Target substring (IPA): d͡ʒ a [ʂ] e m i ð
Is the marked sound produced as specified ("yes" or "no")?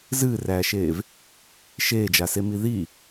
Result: no